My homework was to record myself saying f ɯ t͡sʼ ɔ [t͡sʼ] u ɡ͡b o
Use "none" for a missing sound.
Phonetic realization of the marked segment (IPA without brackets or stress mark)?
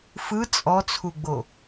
t͡sʰ